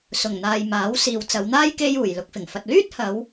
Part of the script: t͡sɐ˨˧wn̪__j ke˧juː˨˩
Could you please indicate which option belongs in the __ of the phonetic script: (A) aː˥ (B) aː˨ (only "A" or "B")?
A